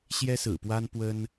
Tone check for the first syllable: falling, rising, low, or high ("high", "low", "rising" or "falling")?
high